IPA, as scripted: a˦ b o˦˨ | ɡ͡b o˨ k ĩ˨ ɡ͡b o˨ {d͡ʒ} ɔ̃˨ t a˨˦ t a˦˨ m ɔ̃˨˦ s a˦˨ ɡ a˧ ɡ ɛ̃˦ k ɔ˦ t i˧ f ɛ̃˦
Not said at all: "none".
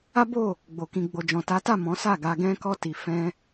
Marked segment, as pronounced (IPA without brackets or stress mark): d͡ʒ